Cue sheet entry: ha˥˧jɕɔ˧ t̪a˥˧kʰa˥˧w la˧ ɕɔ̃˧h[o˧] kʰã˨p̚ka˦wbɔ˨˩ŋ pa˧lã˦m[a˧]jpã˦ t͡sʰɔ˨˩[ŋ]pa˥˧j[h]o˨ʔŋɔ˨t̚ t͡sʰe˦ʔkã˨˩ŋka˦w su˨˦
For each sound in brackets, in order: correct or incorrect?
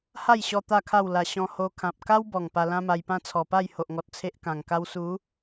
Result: correct, correct, incorrect: none, correct

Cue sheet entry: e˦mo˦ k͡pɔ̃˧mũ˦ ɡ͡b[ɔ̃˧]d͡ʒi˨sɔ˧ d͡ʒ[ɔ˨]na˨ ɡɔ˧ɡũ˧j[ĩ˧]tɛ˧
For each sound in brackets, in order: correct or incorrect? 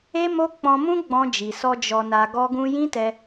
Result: correct, correct, incorrect: ĩ˦

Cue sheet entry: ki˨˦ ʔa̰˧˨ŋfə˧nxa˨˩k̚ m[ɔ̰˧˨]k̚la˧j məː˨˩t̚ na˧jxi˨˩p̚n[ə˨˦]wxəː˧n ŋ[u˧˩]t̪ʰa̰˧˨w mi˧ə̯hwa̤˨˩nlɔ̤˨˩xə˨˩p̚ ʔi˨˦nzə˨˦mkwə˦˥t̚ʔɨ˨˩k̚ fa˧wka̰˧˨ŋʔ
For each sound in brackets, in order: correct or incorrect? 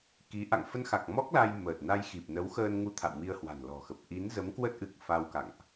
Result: incorrect: ɔ˦˥, correct, incorrect: u˧

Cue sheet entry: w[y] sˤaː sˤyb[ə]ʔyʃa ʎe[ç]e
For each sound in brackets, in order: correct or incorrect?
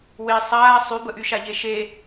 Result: incorrect: e, correct, incorrect: ʃ

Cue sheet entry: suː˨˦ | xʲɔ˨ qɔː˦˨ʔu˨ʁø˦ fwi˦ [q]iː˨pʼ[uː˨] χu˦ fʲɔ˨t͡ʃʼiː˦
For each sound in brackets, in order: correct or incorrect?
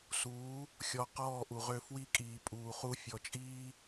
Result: incorrect: kʼ, correct

